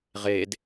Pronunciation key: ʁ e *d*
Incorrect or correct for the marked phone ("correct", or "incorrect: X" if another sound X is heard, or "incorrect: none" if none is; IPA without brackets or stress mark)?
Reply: correct